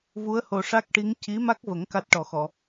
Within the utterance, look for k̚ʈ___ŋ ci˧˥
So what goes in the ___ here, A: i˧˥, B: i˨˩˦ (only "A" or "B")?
A